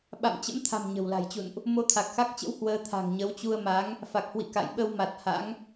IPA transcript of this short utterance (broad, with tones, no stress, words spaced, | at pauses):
ɓa̰˧˨mt͡ɕə̰˧˥mt̪ʰa̤˨˩m ɲə̤˨˩wla̤˨˩jt͡ɕṵ˧˨nʔ | mo˧t̪ʰa˨˩k̚xa˦˥k̚t͡ɕə̰˧˥w hwəː˧ t̪ʰa̤˨˩ŋɲə˨˦wt͡ɕu˧ə̯ma˨˦ŋ | fa˨˩k̚hwḭ˧˨ ka̰˧˨jɓə˧wma˨˩t̚ ha̰˧˥ŋ